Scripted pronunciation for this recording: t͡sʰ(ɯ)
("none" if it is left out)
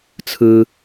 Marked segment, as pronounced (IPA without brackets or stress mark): ɯ